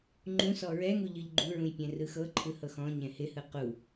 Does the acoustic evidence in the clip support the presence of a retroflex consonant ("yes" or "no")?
no